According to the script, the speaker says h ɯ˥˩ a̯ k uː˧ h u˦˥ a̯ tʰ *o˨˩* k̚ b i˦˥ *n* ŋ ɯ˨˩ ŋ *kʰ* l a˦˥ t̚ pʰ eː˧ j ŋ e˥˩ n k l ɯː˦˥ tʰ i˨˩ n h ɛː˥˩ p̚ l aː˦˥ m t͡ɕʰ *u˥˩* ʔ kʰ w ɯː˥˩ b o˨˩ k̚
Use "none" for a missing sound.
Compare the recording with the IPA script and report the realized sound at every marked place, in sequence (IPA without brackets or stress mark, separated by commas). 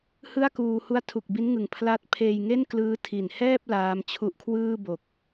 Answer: u˨˩, n, pʰ, u˦˥